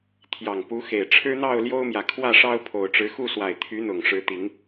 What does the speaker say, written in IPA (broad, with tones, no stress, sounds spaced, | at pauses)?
t̪ʰ j ɑ˨˩ ŋ p u˨˦ x e˨˩ ɪ̯ ʈ͡ʂʰ ɻ̩˦ n̪ ɑ˥˨ ʊ̯ l j o˦ ʊ̯ m j ä˨ kʰ w ä˥˨ ʂ ɑ˦ ʊ̯ pʰ o˨˩ ʊ̯ ʈ͡ʂ ɻ̩˨˦ x u˥˨ s w a˨˩ ɪ̯ t̪ʰ y˨˦ n̪ ʊ˨˩ ŋ ʂ ɻ̩˨˦ t̪ i˨˦ ŋ